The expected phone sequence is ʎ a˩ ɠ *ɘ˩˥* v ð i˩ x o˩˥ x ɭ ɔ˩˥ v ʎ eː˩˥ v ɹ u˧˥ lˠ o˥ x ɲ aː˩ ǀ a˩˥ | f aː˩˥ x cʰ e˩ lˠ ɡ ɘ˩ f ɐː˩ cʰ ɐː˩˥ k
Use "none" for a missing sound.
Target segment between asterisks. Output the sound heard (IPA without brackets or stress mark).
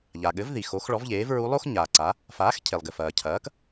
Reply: ɘ˩˥